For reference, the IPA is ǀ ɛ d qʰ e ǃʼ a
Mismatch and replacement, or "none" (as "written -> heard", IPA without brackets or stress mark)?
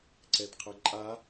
e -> ɘ